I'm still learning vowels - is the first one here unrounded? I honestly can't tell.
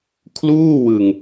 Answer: no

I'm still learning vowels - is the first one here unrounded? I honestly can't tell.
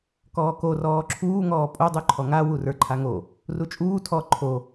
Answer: no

